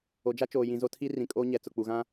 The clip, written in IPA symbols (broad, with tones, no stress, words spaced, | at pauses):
o˨d͡ʒa˦t͡ʃoː˨ jĩ˨zo˦tʰi˦ rĩ˨kʼoː˦ɲɛ˨ t͡sʊ˨k͡pu˨ɣã˦